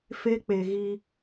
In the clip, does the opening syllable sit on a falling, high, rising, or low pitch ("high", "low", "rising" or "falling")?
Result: high